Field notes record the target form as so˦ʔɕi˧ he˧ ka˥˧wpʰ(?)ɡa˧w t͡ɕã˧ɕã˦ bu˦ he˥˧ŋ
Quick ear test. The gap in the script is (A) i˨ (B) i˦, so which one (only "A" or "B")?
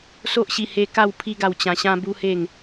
B